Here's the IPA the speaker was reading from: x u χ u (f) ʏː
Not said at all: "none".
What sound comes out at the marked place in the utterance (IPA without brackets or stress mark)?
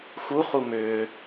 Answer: m